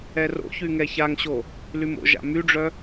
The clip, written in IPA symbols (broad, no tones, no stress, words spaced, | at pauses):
ɛro̰çy ŋɛçaŋɕo | lymo̰ʒa̰ myɖ͡ʐœ